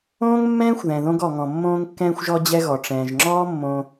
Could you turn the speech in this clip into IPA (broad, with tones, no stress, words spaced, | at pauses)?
õː˥ŋmːɛ̃ː˥xʷ ðɛ̃˩ðõ˧ɡɔ˩ ŋɔ̃˩mːõː˧ŋkːɛ̃ː˧xʷ ʒɔ˧d͡ʑɛ˧ɣɔ˩ ʈ͡ʂɛ̃ː˩ʒŋ͡ǁɔː˥mːõ˧